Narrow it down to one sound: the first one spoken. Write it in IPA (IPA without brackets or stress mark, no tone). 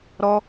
ɾ